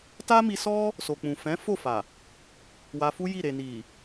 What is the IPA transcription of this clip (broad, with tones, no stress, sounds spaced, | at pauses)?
t a˦ m i˧ s ɔ˦ | s o˨ k͡p ũ˨ f ɛ̃˨˦ f o˦˨ f a˨ | w a˧ f u˦ j i˦˨ ɾ e˨ n i˨